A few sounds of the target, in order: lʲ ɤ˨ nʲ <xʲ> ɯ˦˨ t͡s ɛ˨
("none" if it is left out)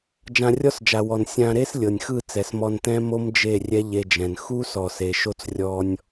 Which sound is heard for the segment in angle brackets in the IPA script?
x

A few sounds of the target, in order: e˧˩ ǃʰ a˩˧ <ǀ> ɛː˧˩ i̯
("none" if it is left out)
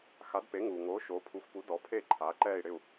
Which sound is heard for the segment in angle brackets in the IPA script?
ǃ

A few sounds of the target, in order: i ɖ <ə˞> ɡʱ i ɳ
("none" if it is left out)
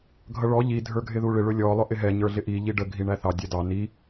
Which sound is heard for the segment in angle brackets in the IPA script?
ə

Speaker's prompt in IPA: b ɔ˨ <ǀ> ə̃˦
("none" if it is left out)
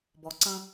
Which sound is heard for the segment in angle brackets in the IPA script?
ǀ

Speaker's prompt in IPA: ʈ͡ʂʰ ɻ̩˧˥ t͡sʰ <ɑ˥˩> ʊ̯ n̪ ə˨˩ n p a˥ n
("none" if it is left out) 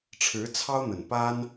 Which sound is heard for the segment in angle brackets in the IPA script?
ɑ˥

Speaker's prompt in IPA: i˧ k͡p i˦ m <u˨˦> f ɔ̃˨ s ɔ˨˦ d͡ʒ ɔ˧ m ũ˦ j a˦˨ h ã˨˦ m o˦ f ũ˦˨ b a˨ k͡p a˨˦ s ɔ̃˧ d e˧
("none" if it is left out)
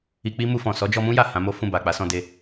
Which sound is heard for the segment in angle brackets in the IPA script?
u˧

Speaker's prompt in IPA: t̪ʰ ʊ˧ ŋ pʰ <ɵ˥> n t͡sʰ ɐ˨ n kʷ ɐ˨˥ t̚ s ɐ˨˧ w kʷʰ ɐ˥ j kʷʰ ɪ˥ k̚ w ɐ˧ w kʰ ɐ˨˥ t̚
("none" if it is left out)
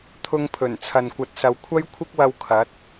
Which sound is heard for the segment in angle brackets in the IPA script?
ɵ˨˩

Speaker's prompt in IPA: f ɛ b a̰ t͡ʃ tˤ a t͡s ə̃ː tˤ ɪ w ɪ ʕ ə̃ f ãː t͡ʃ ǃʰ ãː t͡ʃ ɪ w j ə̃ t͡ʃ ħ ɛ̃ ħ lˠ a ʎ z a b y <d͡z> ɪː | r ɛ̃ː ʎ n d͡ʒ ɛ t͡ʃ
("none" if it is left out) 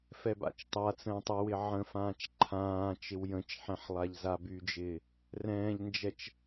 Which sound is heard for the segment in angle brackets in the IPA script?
d͡ʒ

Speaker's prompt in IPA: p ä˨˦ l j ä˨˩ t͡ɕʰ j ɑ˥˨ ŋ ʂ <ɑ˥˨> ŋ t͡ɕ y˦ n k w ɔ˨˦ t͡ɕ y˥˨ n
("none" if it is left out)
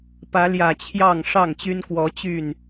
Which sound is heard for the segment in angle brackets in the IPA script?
ɑ˥˨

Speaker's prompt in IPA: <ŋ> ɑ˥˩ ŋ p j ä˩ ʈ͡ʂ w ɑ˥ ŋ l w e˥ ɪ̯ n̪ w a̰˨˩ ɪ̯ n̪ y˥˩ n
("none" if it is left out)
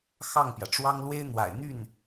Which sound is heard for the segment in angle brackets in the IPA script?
x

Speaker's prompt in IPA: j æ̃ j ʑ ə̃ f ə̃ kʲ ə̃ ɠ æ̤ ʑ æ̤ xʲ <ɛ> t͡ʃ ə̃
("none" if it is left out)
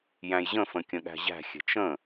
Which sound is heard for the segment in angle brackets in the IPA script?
ɛ̤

